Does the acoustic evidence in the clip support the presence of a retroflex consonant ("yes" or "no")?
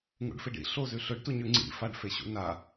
yes